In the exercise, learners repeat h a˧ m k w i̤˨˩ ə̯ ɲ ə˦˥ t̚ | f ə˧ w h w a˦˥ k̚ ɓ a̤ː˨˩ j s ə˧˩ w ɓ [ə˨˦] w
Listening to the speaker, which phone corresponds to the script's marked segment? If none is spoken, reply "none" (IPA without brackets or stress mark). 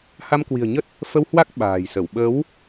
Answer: ə˨˦